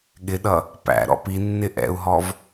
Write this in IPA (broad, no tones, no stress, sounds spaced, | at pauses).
ɠ ɪ ɗ ʌ | p æ̰ ɾ ɔ̰ p i nː ɪ ʔ ɛ̰ u̯ ɦ ɔ v